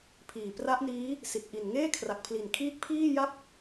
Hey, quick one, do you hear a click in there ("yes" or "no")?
no